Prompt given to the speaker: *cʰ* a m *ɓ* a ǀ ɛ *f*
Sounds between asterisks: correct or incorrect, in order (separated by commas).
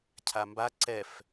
correct, incorrect, correct